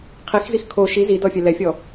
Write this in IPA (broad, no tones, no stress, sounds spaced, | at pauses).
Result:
qʰ i x z i x kʰ o ʃ i z i d ɔ fʲ ɛ l ɛ fʲ ɔ